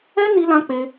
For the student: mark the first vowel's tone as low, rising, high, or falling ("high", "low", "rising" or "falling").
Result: high